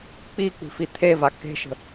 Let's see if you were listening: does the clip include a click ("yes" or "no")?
no